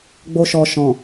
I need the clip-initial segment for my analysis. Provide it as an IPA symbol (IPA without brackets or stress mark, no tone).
ɡ͡b